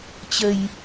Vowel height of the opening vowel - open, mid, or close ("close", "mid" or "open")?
mid